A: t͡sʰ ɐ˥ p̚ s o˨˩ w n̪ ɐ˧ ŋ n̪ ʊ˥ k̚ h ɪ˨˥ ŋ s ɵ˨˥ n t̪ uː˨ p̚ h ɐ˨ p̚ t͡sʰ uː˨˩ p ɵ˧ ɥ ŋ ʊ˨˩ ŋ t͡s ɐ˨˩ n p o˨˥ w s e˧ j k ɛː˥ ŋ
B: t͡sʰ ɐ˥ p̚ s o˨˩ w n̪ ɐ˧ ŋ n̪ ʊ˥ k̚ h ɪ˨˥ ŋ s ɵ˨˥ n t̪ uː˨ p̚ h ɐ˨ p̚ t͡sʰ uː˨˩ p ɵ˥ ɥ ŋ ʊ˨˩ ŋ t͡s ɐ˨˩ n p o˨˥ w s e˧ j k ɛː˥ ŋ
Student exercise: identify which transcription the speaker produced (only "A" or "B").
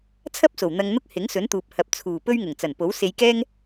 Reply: A